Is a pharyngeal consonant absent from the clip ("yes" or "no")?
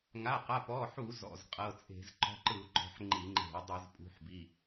no